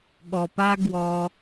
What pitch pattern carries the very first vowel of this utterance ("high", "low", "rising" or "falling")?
low